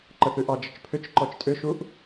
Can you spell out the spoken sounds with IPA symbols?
ǃ ə θ ʉ ʔ ɑ d͡ʒ ə t͡ʃ pʰ ʏ t͡ʃ ǃ ɔ t͡ʃ tʼ ʏ ʃ u ʔ

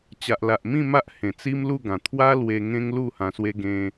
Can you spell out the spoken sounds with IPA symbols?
t͡ɕ a˨ ʔ l a˨ ʔ m ĩ˥˧ m a˦ ʔ h ẽ˨˩ t͡s i˦ m l u˥˧ ɡ ã˨˩ t̪ʰ w a˦ l w e˧ ŋ ẽ˦ ŋ l u˥˧ h ã˧ s w e˦ ɡ ẽ˧

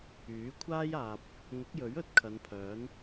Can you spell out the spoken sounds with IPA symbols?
yː˨˥ kʷʰ aː˥ j aː˨ p̚ | ŋ ʊ˨˥ k̚ j ɵ˨˥ ɥ ɵ˨˥ t̚ kʰ ɐ˨˧ n pʰ œː˨˥ n

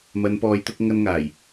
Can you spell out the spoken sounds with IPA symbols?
m ɐ˨˧ n p ɔː˨˧ j t̪ ʊ˧ k̚ ŋ ɐ˧ n ŋ aː˨˩ j

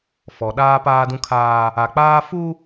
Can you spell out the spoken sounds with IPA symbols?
f ɔ˨ ɗ aː˦ p aː˦ d ũ˦ kʰ aː˦ | a˨ k͡p aː˦ f u˦

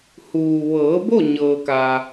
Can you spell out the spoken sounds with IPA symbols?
h uː˩ ʋ ɤː˩˧ b o˥˨ ɲ ɤː˩ k aː˩

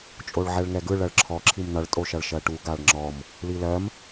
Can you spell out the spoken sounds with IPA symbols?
t͡ʃʼ o ɭ ʕ ɛ ɭ ŋ ɛ ɡ ɯ ɭ ɜ ɭ ǁʰ ɔ ǁʰ i m n ʌ ɭ tʼ o ʃ ʌ ɭ ʃ ɜ ʈ u ɡ a ɭ ŋ͡ǁ ɔ m | l i l ɜ m

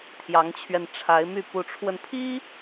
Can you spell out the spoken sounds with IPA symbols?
t̪ʰ j ɑ˧˥ ŋ t͡ɕʰ ɥ ɛ˧ n ʈ͡ʂʰ a˧˥ ɪ̯ m y˥˩ p u˧˥ ʈ͡ʂʰ w ə˧ n pʰ i˥

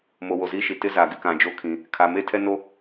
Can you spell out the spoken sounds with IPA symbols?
m o˨ w o˨ z iː˦ ʃ i˨ t ɪ˦ z a˨ ɡ ɪ˦ k ã˨ d͡ʒ o˦ kʰ ĩ˨ | kʰ a˨ m e˦ tʰ ɛ˦ n o˦

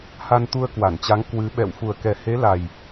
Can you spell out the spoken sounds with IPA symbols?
h a˧ n t̪ u˧ ə̯ k w a˧˩ n t͡ɕ a˨˦ ŋ k w ɨ˨˦ ɓ ɛ̰˧˨ w f u˨˩ ə̯ k ɛ˨˩ h e˨˦ l a˨˩ j

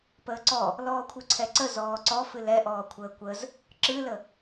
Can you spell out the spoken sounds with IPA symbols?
p əː ǀ ɔ | l ɔː kʷʰ ɨ ǀʰ ɛ ǀ ə z ɔː ǀ ɔ f ɨ l ɛ ʔ ɔː kʷʰ əː kʷ ə z | ǁ ɨ l ə

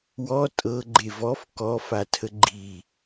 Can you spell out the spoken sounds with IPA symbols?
w ɔ tʼ ɤ ɡ͡ǃ e v ɔ f k ɔ f a tʰ ə ɡ͡ǃ i

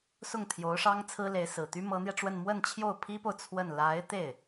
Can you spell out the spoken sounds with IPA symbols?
s ʊ˥˩ ŋ t̪ʰ j o˧˥ ʊ̯ ʂ ɑ˥ ŋ t͡sʰ ɹ̩˥ l e˧˥ ɪ̯ s ɹ̩˨˩ t̪ y˥ m ɤ˧˥ n̪ j ɛ˧ ʈ͡ʂ w ə˥˧ n m w ə˥˧ n t͡ɕʰ j o˥˩ ʊ̯ pʰ i˥ p o˨ ʊ̯ t͡sʰ w ə˥˩ n l a˧˥ ɪ̯ t̪ e˥˩ ɪ̯

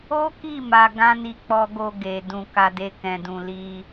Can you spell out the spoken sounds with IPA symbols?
o˦ k i˦˨ m a˧ ɡ ã˦ n i˧ k͡p ɔ˧ ɡ o˧ ɡ e˨ d ũ˨ k a˧ d e˧ k ɛ̃˨ d ũ˨ l i˧

